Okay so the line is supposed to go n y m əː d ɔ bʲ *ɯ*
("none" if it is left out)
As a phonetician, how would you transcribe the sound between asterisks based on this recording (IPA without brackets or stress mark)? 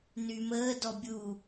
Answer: u